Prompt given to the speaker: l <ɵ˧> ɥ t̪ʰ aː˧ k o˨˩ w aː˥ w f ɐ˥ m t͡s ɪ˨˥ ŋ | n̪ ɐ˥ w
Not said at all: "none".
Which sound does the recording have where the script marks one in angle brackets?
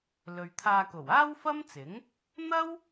ɵ˨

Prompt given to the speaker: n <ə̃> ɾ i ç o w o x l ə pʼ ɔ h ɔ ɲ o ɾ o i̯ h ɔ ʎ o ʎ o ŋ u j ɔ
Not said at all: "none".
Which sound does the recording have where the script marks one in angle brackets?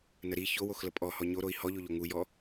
ə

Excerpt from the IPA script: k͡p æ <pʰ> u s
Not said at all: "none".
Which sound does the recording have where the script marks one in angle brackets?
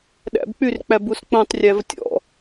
b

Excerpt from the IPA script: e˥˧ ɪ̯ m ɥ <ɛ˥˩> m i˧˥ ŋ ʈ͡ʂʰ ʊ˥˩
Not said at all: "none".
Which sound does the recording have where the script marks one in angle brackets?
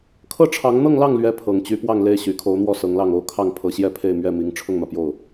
ɛ˥˩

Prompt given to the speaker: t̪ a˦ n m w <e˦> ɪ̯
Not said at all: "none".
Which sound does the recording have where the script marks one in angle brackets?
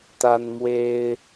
e˦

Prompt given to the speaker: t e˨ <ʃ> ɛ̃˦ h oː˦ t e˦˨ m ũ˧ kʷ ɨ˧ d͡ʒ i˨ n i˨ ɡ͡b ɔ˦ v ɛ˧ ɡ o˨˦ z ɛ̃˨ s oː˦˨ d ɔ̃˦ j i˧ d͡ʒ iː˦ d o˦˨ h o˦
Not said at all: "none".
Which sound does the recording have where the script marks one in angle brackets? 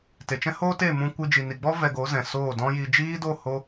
t͡ʃ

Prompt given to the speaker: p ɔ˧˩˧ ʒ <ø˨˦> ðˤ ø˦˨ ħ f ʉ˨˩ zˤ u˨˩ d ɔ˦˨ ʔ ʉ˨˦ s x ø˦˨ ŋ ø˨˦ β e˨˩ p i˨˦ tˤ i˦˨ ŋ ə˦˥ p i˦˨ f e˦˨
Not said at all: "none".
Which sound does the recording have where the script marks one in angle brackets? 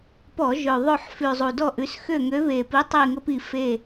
ø˨˩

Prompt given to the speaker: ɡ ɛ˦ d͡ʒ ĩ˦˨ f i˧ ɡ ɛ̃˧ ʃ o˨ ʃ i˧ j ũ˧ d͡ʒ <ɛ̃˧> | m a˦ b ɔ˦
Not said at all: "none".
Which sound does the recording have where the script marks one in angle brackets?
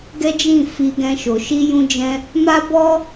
ɛ̃˧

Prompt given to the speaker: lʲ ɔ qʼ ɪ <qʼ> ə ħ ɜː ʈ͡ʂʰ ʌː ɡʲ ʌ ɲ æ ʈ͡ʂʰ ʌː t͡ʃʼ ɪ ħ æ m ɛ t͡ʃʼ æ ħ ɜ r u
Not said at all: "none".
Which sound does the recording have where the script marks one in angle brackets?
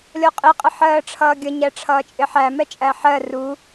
qʼ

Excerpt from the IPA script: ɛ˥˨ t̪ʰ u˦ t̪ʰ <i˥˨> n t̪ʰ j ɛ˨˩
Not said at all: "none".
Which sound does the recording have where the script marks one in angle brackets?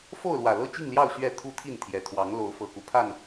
i˥˨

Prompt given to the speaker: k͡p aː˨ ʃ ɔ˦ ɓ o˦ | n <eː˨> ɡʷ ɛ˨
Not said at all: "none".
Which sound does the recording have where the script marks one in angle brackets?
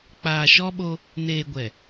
eː˨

